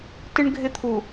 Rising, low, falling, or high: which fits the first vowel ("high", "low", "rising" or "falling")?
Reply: high